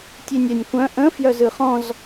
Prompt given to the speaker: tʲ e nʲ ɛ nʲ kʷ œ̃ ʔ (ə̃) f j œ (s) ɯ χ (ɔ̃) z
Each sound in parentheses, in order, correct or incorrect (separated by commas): correct, incorrect, correct